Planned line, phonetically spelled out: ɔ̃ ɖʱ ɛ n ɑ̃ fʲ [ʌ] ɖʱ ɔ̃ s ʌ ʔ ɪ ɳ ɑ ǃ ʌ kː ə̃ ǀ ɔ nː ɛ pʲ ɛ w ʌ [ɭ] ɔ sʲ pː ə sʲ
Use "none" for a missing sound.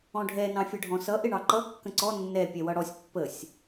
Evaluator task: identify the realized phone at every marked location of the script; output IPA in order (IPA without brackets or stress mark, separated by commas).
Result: ʌ, ɽ